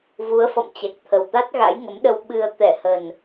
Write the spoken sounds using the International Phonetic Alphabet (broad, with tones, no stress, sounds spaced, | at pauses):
v u˨˦ ə̯ f ɔ̰˧˨ m t͡ɕ ɛ˨˩ k̚ t̪ʰ ə˨˩ w t̪ a˦˥ t̚ ɣ a̰˧˥ j ŋ ə˨˦ m ɗ ə˧ w ɓ ɨ˧ ə̯ t̪ ɛ˧˩ h ə˨˩ n